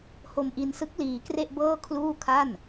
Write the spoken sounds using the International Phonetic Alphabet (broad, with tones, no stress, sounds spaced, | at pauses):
h o˧ m ʔ i˧ n s ɯ˦˥ k̚ l iː˧ k r e˥˩ ʔ b ɤː˥˩ kʰ l uː˥˩ kʰ a˥˩ n